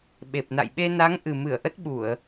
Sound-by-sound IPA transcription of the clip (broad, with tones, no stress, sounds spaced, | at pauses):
ɓ e˨˩ p̚ n a̰˧˨ j ɓ e˧ n a˨˦ ŋ ʔ ɨ˨˩ m ɨ˧˩ ə̯ ʔ ə˦˥ t̚ ɓ u˧˩˨ ə̯